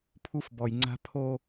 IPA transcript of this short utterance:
pʰ u˦ f b ɔ˨ j ŋ͡ǀ a̤˦ pʰ o˦

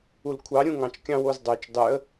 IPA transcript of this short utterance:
u l kʷʰ ɑ ɾʲ ũ ŋ ɑ̃ t͡ʃ kʲ ɑ̃ w o z dˤ ø t͡ʃ dˤ y ə̯

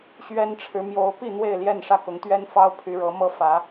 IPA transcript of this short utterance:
ɕ ɥ ɛ˦ n ʈ͡ʂʰ ɻ̩˨˦ m j o˨˦ ʊ̯ p i˥˨ n̪ w e˥˨ ɪ̯ l j ɛ˥˨ n ʂ ä˥˨ k ʊ˨˦ ŋ t̪ ɥ ɛ˦ n f ɑ˦ ʊ̯ pʰ y˨˦ ɻ ɤ˨˦ m ɤ˥˨ f ä˨˦

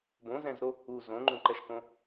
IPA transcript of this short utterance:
b õ z ɛ̃ z ɾ o | u z õ ŋ͡ǃ ũ ǃ ɛ ʃ k õ

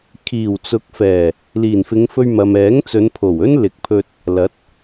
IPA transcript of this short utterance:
kʰ iː˨˩ w t͡s ʊ˨˥ k̚ f ɛː˨˩ | l iː˨˩ n f ɪ˨˧ ŋ f ɵ˧ ɥ m ɐ˨ m ɛː˨˥ ŋ t͡s ɵ˨˧ n pʰ o˨˩ w ɵ˥ n l ɪ˨ k̚ pʰ ɵ˧ t̚ | l ɐ˨˥ t̚

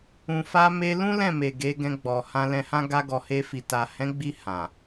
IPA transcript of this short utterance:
ũ˨ f a˧ m e˧ l ũ˦ l ɛ̃˦˨ m e˨ ɡ e˨˦ ɡ ɛ̃˧ ɡ͡b ɔ˨ h ã˧ l ɛ̃˧ h ã˦ ɡ a˧ ɡ ɔ˨ h e˧ f i˨ t a˨ h ɛ̃˨˦ ɡ͡b i˧ h ã˨

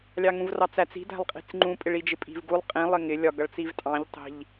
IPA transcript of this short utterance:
lʲ ɑ ŋ ũ v r ɑ t͡s æ t͡s i̤ d æ̤ lˠ qʼ i̤ t͡s ŋ͡ǃ ũ pʼ ɪ ɭ i d͡ʒ ɪ pʼ i̤ v ɡ u lˠ qʼ ĩ lˠ ɪ ŋ ɪ lʲ ɒ ɡ ʌ ɭ t͡s i v tʼ ɑ̃ ʎ tˤ i̤ ʎ

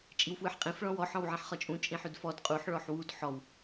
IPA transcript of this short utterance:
t͡ʃʼ i w f w ɯ ħ qʼ ĩ f ɭ ɔ̃ w ɔ ħ ɔ̃ w ʕ ẽ ħ χ ɒ t͡ʃʼ ũ t͡ʃʼ ĩ ħ ʉ d f ɔ d qʼ u ħ ɭ ɔ ħ w u d ħ ɔ w

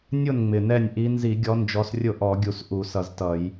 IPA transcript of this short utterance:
nʲ ʊ˥˩ n ŋ͡m ɪ˨˩ n ɛ˥˩ nʲ ʔ i˨˦ n z i˧˩˧ ɡʲ ɔ˨˦ n d͡ʒ ɔ˨˦ s rʲ ʊ˥˩ ʔ ɔ˧˩˧ ɡʲ u˨˩ s ʔ u˧˩˧ s ʌ˧˩˧ z t ʌ˧˩˧ j

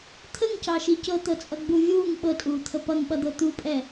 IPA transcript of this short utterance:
t̪ʰ ə ŋ c ɑ ʃ i c ɤ t̪ ɤ t͡sʼ ʌ ɡ͡b u vʲ uː ŋ ɓ ɤ tʼ uː t̪ʰ ə p ʌ ŋ ɓ ʌ d̪ ɤ t̪ u pʼ ɛ

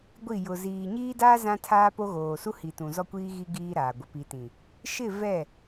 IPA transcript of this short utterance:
ɡʷ i˦˨ j ʊ˨ z iː˨ ɲ iː˦ d aː˦ z ã˦ tʰ aː˦ p o˦ ɣ oː˨ s u˦ h i˨ t ũ˨ z ɔ˦ kʷ iː˦ ɣ i˦ ɡ iː˦ ɾ aː˨ ɡʷ ɪ˨ p i˨ t ĩ˨ | ʃ ɪ˦˨ v ɛ˦˨

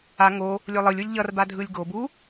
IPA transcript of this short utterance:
a ŋ o | lʲ o lˠ ɯ lʲ u lʲ ʎ ʌ r b a dʱ ɯ lʲ ɡ o b u

